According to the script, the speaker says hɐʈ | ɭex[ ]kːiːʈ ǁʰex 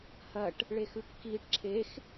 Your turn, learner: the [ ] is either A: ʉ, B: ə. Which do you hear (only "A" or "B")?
A